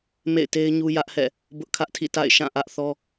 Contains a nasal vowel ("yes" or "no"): yes